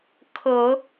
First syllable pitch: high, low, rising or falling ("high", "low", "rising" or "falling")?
low